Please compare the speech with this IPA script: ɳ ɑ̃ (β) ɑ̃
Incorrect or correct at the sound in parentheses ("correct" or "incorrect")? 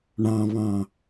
correct